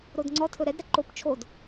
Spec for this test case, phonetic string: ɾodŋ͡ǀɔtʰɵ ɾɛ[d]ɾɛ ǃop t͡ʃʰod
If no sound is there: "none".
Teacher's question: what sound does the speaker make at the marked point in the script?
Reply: d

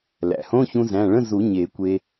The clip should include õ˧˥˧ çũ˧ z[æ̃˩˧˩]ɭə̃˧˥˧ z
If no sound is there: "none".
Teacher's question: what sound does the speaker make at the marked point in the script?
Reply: æ̃˩˧˩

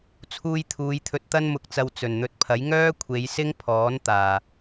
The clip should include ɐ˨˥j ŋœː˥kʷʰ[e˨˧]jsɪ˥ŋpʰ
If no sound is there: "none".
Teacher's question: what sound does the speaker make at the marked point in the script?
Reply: e˨˧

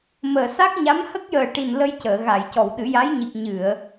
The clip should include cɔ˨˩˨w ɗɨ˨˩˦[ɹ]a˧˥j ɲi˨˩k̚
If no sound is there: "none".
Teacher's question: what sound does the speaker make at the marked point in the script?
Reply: j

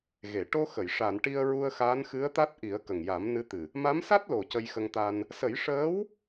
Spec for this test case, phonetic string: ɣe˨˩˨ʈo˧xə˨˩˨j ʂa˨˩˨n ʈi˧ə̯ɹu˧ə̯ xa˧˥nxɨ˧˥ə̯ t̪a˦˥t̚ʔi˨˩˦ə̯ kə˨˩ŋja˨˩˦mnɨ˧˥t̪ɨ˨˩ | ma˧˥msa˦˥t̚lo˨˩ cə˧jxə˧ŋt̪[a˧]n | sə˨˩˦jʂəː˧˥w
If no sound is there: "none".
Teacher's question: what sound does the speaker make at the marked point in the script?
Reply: a˧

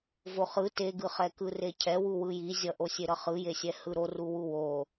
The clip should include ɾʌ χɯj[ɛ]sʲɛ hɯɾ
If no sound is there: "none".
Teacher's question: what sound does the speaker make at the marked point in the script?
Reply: e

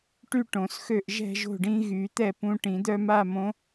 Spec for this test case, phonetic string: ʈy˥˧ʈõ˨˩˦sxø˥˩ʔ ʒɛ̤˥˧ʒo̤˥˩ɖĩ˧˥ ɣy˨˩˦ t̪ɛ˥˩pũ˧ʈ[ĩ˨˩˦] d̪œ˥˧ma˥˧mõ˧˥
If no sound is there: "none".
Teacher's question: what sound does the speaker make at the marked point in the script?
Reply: ĩ˨˩˦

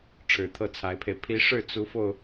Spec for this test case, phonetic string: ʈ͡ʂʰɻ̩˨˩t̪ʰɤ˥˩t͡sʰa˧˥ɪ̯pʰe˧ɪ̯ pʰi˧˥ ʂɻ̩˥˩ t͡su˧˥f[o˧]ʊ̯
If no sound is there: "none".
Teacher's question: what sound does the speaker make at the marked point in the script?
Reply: o˧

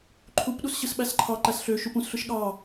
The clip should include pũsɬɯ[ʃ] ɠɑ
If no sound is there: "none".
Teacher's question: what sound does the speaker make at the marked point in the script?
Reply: ʃ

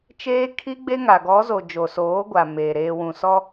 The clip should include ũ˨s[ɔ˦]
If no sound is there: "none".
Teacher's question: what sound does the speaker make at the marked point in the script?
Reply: ɔ˦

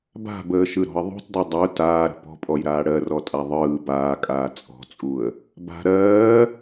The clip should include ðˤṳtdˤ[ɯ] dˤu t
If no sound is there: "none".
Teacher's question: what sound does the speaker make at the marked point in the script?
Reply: ɯ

